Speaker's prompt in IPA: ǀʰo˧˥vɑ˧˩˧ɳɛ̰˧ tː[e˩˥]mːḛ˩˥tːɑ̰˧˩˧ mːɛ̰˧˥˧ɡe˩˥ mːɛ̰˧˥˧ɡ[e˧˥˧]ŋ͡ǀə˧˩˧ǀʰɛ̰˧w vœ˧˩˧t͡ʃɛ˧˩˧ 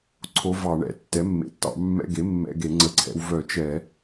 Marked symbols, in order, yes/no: no, no

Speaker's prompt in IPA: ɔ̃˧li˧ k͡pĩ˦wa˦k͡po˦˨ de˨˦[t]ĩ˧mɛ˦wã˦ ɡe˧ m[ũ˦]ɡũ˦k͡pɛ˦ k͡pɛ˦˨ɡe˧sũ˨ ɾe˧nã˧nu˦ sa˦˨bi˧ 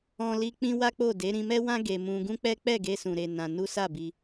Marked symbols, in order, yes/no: no, no

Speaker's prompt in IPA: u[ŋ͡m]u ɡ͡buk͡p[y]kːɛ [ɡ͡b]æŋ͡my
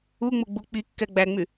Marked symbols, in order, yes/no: yes, no, yes

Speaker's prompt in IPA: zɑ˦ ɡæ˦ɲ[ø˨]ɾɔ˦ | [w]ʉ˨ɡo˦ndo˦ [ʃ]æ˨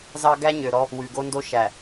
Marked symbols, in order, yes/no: yes, yes, yes

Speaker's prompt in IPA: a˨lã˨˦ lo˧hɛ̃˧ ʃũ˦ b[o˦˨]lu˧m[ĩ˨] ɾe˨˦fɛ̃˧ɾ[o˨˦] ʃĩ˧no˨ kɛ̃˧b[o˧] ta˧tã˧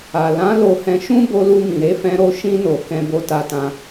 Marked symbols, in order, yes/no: no, yes, no, yes

